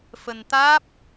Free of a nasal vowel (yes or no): yes